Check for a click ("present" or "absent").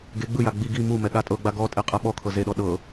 absent